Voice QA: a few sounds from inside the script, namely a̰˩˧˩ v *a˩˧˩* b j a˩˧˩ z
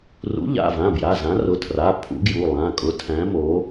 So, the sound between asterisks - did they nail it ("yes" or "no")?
no